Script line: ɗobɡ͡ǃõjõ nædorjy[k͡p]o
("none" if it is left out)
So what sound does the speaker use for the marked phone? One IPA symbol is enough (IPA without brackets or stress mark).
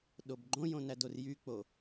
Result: k͡p